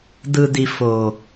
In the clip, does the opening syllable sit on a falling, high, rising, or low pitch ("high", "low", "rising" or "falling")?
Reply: low